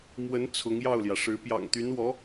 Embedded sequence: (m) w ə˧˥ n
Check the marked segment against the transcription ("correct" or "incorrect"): correct